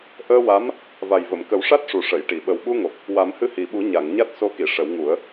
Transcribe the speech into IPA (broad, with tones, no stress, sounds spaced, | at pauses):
ʔ əː˧ w a˧˥ m | v a˨˩ j v ə˨˩˨ m k ə˨˩˦ w ʂ a˦˥ t̚ ʂ u˨˩ ʂ ə˨˩˨ j ʈ i˨˩˨ ɓ ə˨˩ w ɓ u˧ ŋ o˨˩ p̚ | w a˨˩˦ m h ɨ˧ h i˨˩ ɓ u˨˩˦ ɲ a˨˩˨ ŋ ɲ a˦˥ t̚ s o˧˥ k i˨˩˨ ʂ ə˨˩˦ w ŋ u˨˩˦ ə̯